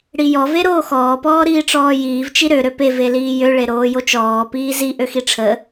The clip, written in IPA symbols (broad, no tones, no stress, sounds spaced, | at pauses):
ɽ i j ɔ v e ɾ oː x ɔː p ɔː ɾ iː ʈ͡ʂ ɔː j iː v t͡ʃ i ɾ ø ɾ ø p e v e l iː j ø ɭ e ɾ oː j o t͡ʃ ɔː p iː z i ʔ ø x i ʈ͡ʂʰ ə